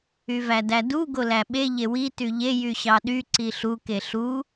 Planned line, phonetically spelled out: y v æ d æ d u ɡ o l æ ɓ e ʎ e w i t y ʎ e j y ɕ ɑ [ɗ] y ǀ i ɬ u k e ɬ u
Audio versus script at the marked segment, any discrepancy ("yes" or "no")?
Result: no